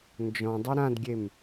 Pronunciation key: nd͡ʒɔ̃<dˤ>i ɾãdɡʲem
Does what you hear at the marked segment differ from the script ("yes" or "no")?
no